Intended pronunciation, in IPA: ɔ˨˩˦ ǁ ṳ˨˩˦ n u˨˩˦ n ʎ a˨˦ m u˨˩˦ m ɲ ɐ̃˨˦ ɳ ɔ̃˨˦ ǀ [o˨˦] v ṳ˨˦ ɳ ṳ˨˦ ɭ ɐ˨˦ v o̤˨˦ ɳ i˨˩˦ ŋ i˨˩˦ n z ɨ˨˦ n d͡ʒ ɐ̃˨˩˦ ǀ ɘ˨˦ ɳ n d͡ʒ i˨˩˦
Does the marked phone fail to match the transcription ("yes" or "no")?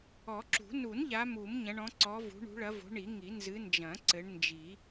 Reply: yes